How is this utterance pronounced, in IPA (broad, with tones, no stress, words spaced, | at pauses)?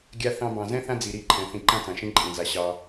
ɡʲa˦ θɑ̃˧bɑ̃˨zɛ̃˦ θã˦d͡zi˨ɾi˦˨ ǃʰɛ̃˧ θĩ˧ǃã˦t͡sã˨ʃĩ˦ ǃʼĩ˨za˧ ɕɑ˧